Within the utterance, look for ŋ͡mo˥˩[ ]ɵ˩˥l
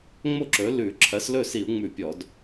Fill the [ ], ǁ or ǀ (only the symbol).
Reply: ǁ